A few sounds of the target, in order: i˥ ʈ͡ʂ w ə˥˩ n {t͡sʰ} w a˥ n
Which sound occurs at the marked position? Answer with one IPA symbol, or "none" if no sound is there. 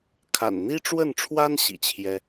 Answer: ʈ͡ʂʰ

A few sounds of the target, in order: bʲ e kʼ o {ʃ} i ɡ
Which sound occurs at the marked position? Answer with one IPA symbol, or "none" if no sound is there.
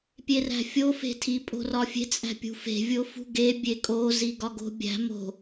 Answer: z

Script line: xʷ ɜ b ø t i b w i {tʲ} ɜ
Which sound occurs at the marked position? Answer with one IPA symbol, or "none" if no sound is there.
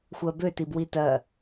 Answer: t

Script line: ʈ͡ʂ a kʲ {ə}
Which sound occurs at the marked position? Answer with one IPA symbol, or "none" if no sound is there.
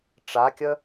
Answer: ə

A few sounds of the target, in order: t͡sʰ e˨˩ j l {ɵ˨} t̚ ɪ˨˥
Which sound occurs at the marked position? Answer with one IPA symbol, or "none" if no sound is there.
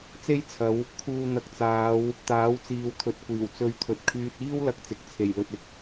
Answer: ɵ˨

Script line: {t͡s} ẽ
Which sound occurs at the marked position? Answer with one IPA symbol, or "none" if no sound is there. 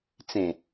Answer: t͡s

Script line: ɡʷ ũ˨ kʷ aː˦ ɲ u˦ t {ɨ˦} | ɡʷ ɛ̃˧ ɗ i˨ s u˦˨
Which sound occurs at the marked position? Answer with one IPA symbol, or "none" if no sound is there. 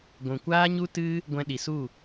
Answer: ɨ˦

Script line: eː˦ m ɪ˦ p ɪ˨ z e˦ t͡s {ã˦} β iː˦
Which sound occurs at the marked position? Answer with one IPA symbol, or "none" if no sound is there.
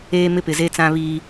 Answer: ã˦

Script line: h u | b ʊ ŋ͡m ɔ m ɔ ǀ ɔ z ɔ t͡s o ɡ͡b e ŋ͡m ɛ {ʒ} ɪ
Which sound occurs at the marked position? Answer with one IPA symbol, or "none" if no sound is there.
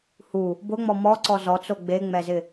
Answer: z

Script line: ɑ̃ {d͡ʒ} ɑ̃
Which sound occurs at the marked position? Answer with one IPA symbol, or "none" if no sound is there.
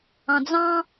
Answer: d͡z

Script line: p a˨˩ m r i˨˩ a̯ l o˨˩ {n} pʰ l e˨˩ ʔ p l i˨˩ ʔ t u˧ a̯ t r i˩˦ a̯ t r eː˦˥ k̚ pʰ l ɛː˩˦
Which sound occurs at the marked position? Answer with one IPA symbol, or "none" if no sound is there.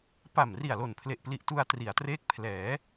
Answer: n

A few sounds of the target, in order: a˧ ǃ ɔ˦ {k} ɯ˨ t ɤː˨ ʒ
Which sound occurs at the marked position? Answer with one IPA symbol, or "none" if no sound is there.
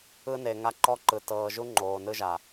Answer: ǃ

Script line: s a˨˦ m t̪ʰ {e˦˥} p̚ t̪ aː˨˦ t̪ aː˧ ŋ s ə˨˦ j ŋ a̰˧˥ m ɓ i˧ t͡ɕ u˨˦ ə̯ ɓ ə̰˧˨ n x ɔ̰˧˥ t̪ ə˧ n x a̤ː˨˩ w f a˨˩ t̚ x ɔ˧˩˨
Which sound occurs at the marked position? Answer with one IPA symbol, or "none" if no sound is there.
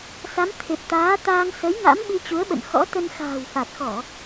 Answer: e˨˩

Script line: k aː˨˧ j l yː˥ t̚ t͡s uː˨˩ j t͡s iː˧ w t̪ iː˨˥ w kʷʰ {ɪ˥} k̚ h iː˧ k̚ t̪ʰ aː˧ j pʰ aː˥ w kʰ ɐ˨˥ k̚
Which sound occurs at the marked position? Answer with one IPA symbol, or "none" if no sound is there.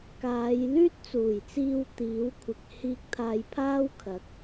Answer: ɪ˨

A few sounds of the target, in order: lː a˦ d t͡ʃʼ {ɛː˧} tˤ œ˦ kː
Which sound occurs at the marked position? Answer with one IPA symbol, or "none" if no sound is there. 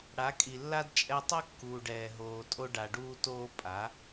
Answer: ɛ˧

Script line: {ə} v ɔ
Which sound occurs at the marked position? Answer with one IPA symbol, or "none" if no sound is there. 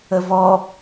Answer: ə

